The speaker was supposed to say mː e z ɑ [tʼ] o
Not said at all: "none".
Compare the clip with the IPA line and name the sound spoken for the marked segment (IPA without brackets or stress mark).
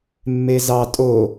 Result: tʼ